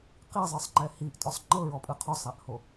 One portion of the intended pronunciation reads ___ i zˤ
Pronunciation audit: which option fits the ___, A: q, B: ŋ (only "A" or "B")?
A